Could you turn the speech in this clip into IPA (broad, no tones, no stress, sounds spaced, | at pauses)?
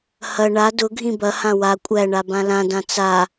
h ɐ ɳ a d ʊ ɡʱ ĩ b ɐ h ã w a kʷʼ æ ɳ a b ã l ã d ã t͡s a